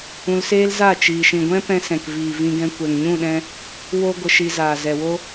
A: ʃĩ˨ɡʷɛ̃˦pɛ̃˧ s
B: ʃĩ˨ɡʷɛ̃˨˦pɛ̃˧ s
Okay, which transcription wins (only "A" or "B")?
A